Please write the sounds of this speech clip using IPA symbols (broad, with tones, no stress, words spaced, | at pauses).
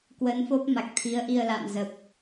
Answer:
kwə˨˦nfo˦˥p̚ ma˨˩k̚t̪ʰi˨˦ə̯ʔi˧ə̯ la̰˧˨mzə˨˩p̚